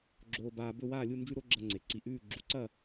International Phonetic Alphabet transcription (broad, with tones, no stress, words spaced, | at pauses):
ɡ͡ǁoː˧baː˧ bɵ˥˧waː˥˧lʲu˥˧ nd͡ʒʉ˥ɾo˥ ɡ͡ǁɐ˧ŋ͡ǀe˩˧ ǀi˧ ʔʉː˥˧ ɡ͡ǁu˧ǀɐ˥˧